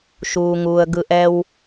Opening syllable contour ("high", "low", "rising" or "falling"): high